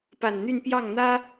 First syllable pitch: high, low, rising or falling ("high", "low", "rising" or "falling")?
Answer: low